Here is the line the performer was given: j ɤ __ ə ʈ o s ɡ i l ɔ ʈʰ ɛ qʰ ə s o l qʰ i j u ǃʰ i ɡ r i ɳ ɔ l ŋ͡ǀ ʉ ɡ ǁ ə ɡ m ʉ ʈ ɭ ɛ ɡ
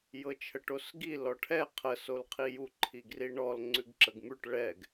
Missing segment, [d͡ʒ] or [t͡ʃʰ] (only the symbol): t͡ʃʰ